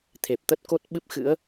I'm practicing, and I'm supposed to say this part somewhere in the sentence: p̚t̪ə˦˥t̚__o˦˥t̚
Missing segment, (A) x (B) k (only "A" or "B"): B